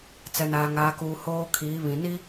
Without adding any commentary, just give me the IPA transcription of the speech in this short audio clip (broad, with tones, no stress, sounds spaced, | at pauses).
t͡s ɛ˨ n aː˨ ŋ aː˨ k uː˨ h oː˦ kʰ iː˨˦ β ĩ˨ n i˦